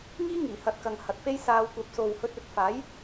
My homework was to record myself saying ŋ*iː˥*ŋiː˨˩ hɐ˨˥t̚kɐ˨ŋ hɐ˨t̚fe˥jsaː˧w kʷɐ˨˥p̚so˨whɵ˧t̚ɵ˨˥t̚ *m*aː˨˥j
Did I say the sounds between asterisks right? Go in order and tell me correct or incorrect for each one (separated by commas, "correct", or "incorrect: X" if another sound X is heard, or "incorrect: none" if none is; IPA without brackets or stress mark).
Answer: correct, incorrect: f